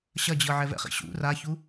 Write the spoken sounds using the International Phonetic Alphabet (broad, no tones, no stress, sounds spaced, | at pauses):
ɕ ɐ d͡ʑ ɤ ʕ ɛ v ɛ̰ χ ḭ ɕ ṵ r a ç u